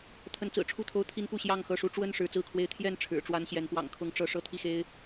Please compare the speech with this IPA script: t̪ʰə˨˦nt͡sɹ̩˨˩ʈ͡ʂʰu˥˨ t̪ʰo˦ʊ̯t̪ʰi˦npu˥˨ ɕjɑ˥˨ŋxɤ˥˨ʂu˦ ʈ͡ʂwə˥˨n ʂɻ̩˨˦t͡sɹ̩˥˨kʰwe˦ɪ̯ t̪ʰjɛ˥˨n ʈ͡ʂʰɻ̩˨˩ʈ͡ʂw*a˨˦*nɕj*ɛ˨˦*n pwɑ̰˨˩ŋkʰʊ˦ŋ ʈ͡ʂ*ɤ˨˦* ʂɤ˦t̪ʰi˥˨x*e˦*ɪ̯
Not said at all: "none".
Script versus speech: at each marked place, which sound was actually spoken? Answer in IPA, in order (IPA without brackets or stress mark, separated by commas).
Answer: a˦, ɛ˨˦, ɤ˨˦, e˦